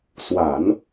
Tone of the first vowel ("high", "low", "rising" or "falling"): low